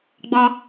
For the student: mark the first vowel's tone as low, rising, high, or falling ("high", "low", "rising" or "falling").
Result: high